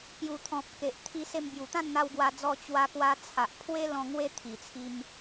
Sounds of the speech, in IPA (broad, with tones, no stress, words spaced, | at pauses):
pju˨˩t̪ʰɔ̃˨p̚ ke˨ʔ t̪ʰi˧se˧mbju˨˩ t̪ã˥˧nn̪a˧wɡwa˧d͡zɔ˧ t͡ɕwa˧kwa˧ t͡sʰa˨ʔpʰwe˦lɔ̃˧ ŋwe˦t̪ʰi˨˩t͡sʰi˧m